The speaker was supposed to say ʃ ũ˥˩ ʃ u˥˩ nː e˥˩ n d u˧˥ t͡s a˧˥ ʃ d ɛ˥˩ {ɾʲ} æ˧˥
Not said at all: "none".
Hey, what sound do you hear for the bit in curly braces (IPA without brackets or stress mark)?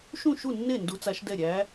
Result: ɾʲ